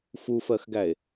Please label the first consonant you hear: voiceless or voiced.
voiceless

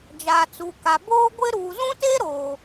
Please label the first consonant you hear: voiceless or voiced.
voiced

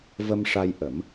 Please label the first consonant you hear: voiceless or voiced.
voiced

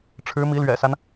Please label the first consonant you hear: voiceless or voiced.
voiceless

